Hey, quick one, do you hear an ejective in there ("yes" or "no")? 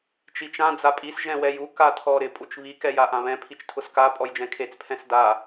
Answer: yes